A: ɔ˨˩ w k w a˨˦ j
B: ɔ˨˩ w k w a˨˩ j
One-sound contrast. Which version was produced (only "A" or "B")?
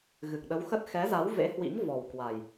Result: B